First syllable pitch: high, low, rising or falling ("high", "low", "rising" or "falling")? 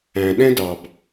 low